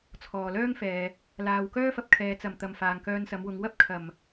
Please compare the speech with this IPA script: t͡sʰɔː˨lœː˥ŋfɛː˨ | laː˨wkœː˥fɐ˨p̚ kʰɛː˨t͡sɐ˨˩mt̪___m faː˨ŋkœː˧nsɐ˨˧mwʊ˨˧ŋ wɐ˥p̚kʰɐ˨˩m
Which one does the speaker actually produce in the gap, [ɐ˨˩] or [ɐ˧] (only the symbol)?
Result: ɐ˨˩